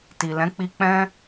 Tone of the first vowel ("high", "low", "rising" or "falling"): low